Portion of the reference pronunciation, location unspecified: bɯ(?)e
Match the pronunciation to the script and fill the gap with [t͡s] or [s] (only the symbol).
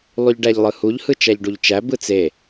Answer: t͡s